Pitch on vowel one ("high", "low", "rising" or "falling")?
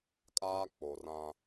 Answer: high